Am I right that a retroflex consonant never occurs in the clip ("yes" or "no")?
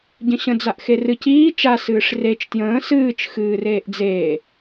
no